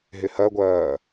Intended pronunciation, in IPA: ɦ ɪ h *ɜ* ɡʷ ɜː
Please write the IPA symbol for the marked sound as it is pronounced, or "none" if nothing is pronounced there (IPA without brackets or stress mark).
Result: ɜ